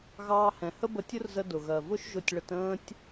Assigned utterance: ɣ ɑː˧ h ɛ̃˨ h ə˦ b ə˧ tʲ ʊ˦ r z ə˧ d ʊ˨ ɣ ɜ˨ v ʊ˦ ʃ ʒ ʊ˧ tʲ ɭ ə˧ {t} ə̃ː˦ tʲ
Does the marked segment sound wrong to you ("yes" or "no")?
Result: no